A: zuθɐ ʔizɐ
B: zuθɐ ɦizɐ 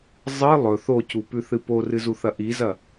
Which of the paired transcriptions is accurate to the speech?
A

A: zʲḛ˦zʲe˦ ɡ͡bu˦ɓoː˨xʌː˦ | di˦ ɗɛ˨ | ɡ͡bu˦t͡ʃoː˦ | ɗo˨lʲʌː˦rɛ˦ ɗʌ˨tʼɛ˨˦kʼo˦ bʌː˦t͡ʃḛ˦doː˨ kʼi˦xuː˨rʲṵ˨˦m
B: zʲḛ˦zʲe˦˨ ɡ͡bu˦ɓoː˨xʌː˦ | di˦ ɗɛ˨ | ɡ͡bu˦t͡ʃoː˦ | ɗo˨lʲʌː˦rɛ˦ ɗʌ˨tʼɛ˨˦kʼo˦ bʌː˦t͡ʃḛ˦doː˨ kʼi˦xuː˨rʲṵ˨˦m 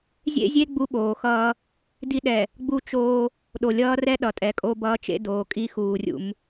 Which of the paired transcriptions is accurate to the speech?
A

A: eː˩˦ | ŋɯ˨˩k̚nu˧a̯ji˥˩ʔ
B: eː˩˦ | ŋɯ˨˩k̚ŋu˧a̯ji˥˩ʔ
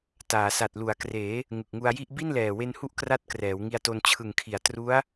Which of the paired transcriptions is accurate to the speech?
B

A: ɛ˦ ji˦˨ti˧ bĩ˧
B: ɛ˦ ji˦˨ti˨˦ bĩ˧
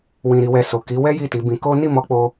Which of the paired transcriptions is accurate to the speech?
B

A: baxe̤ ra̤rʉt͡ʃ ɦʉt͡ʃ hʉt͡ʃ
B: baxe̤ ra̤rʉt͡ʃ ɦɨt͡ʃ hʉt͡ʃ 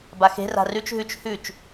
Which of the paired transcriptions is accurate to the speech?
A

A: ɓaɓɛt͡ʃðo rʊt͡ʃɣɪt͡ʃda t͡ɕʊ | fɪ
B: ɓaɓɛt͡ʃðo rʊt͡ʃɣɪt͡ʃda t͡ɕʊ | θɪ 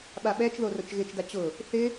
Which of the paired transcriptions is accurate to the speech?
B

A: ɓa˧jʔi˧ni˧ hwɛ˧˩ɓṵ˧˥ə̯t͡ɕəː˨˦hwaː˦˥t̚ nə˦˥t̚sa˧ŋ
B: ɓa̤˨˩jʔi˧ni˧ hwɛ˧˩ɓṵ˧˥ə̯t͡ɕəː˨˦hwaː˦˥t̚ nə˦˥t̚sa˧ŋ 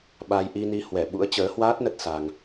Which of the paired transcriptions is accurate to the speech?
A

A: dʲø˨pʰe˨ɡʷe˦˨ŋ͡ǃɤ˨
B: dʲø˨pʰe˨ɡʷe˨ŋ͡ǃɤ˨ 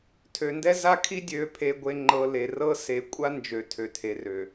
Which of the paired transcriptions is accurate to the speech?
B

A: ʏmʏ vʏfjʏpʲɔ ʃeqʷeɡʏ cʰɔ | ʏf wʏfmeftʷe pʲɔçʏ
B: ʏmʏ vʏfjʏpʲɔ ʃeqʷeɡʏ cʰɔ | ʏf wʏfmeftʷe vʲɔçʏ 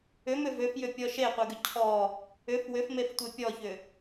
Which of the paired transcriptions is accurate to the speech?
A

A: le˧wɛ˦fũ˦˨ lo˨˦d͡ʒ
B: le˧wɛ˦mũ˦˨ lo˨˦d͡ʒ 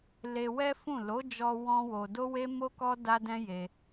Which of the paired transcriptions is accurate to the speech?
A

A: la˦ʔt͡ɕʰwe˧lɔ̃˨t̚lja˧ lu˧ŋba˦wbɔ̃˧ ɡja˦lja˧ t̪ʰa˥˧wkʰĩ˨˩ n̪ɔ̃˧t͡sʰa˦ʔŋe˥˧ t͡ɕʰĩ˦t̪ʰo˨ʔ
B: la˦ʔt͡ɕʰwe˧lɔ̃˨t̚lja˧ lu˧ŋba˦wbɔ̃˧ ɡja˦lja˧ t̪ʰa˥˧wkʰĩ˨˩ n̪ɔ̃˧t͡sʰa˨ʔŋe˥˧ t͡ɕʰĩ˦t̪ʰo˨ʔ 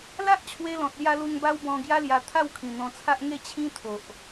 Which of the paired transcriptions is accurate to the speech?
A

